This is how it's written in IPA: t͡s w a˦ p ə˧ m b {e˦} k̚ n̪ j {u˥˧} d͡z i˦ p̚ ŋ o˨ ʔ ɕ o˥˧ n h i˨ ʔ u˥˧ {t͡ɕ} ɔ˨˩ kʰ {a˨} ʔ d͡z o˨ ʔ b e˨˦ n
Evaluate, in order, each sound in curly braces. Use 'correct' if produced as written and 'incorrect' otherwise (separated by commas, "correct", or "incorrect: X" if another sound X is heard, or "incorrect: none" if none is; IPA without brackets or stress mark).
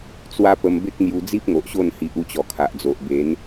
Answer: correct, incorrect: u˧, correct, correct